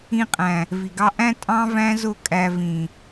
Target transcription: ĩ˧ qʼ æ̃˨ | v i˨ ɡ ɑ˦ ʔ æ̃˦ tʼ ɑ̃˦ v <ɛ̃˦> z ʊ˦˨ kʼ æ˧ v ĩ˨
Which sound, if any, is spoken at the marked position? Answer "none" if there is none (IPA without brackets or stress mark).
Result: æ̃˦